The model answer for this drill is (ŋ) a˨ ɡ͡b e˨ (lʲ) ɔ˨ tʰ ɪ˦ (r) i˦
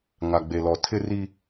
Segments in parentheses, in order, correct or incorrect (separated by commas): correct, incorrect, correct